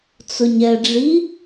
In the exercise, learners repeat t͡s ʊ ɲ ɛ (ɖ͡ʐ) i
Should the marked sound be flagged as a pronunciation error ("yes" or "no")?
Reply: no